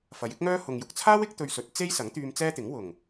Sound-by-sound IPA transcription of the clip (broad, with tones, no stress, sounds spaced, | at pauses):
f ɐ˨˧ j ɪ˥ k̚ ŋ œː˥ h ʊ˨ ŋ j ʊ˨ k̚ t͡sʰ aː˥ w ɪ˥ k̚ t̪ ɵ˧ ɥ s ɵ˨˥ t̚ t͡s e˥ j s ɐ˨˥ ŋ t̪ yː˧ m t͡s ɛː˥ t̪ ɪ˨˥ ŋ w ʊ˨˩ ŋ